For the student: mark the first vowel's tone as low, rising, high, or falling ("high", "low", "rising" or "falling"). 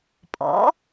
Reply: rising